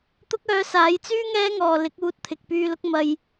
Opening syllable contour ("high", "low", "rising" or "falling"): high